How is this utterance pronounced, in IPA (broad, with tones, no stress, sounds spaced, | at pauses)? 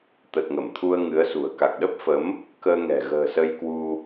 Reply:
t̪ ə˨˩ t̚ ŋ ə˧˩ m t̪ʰ u˧ ə̯ ŋ ɨ˨˦ ə̯ s ṳ˨˩ ə̯ k a˨˩ k̚ ɗ ə˦˥ p̚ f ə˨˦ m | k əː˧ ŋ ɛ̤˨˩ ɣ ə̤ː˨˩ s ə˧ j k w u˧